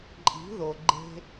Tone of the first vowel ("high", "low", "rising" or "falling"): rising